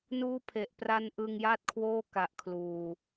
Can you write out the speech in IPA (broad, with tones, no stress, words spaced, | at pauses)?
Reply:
nuː˦˥pʰe˨˩ʔ pra˦˥n ʔɯ˧ŋja˥˩t̚kʰwoː˥˩ ka˨˩ʔ kʰluː˨˩